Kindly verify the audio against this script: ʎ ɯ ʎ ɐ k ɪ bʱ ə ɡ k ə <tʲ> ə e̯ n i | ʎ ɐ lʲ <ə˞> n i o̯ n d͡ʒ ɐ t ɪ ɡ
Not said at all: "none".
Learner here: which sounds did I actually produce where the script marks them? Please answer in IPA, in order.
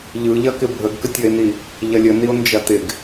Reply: tʲ, ə

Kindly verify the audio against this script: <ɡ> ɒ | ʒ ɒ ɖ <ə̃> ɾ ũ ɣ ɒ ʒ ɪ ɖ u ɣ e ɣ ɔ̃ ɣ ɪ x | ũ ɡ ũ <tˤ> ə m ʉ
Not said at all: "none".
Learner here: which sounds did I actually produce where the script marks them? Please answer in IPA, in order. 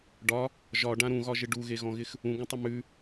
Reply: ɖ, ã, tˤ

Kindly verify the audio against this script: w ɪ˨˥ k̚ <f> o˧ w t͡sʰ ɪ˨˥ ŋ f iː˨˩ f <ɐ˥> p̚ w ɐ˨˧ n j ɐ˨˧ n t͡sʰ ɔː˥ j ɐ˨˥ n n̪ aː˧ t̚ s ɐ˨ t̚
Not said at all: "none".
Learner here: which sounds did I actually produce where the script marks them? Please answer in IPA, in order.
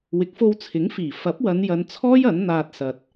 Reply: f, ɐ˨˥

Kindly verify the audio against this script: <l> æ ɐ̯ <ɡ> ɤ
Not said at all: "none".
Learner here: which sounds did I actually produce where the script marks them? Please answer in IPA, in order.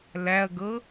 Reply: l, ɡ

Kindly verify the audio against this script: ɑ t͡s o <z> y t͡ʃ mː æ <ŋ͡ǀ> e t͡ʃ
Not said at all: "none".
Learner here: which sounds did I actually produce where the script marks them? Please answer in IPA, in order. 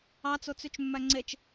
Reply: t͡s, ŋ͡ǀ

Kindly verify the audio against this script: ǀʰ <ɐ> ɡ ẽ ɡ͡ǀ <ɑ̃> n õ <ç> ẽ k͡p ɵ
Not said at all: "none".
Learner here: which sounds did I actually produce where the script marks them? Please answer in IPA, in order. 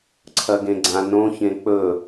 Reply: ɐ, ã, ç

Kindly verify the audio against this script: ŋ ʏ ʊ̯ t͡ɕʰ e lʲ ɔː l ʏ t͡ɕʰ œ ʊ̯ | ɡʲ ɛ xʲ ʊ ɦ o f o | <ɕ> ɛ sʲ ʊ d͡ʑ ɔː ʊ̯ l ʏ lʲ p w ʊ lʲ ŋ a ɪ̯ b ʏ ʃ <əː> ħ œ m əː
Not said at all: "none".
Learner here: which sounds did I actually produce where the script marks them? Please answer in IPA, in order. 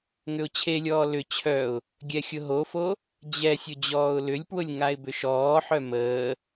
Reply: d͡ʑ, ɔː

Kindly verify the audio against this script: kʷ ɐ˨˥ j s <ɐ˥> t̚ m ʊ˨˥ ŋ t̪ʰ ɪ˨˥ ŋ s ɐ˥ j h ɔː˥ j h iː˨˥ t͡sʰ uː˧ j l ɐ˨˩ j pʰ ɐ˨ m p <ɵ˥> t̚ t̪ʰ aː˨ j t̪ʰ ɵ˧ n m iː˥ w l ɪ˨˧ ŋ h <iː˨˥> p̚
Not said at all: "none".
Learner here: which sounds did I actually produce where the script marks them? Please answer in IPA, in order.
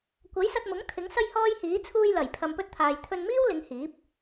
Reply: ɐ˧, ɵ˥, iː˨˥

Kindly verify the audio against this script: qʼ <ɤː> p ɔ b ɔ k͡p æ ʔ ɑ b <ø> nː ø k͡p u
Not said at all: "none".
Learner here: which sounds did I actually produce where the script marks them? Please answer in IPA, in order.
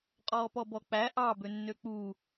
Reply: ɔː, ø

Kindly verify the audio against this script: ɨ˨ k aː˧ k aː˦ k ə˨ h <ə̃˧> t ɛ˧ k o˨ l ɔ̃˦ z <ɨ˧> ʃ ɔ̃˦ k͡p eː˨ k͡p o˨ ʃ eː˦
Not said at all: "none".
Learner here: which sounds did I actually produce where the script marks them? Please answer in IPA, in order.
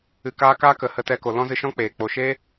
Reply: ə˧, ɨ˧

